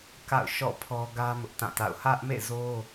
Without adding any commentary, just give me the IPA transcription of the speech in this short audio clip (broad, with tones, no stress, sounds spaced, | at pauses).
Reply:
k a̰˦˨ ʊ̯ ʃ ɔ̰˦˨ pʰ ɔ˦ ɡ ä˦ m ʊ˦ ʔ t ã˦˨ t a̰˦˨ ʊ̯ h ä˦ ʔ m ḛ˦˨ z o˦